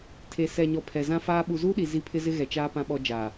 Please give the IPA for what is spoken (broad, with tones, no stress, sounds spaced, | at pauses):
tʰ e˨ s ɛ˨ ɲ ɔ˨ pʰ ɛ˨ z ã˦ f aː˦ ɓ u˨ z uː˦ ɗ i˨ z i˦ pʰ ɪ˦ z ɪ˦ ɣ ɛ˨ t͡ʃ aː˦ p ã˦ ɓ ɔ˦ d͡ʒ aː˨